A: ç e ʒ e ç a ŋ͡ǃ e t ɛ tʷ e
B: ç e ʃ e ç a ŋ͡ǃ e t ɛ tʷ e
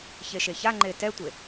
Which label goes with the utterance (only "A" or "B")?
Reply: B